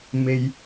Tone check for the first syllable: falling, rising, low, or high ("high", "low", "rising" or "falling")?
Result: low